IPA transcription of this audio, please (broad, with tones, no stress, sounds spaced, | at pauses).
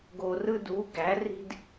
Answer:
ɡ o˩ r ɯ˧ d u˩˧ ɡ æ˩˧ r i̤˧ d